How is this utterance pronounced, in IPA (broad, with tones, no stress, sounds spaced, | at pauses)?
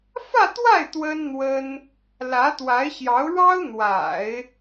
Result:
f ä˥˧ t̪ w a˥˩ ɪ̯ t̪ w ə˥ n n̪ w ə˥ n | l ä˧˥ t̪ w a˧˥ ɪ̯ ɕ j ɑ˧˥ ʊ̯ ɻ ɑ˥ ʊ̯ n̪ w a̰˨˩˦ ɪ̯